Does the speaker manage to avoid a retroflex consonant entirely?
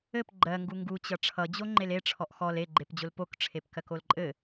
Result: no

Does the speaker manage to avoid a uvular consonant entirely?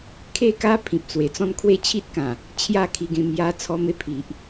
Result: yes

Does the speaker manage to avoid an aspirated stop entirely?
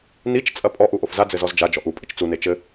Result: yes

